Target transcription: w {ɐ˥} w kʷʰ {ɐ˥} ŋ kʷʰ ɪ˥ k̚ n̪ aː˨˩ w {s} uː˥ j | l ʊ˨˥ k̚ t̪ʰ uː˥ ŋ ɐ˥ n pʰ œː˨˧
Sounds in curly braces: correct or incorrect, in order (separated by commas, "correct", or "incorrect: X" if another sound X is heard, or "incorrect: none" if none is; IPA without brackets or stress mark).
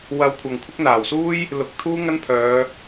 incorrect: ɐ˧, incorrect: ɐ˨, correct